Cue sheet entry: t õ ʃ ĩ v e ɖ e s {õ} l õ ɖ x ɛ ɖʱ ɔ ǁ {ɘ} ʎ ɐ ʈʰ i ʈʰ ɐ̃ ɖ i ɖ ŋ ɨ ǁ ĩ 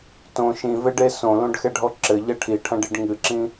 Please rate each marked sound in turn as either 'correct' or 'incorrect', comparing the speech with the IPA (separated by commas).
correct, correct